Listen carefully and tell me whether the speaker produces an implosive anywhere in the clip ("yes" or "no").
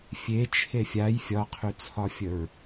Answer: no